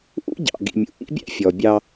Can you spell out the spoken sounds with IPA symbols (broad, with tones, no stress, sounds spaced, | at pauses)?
ʔ ṵ˦ ɟ ɑ̰˨ ɡ ḭ˨ mʲ ṵ˨ ʔ ḭ˦ bʲ æ̰˦ fʲ ɔ˨ bʲ ɑ˦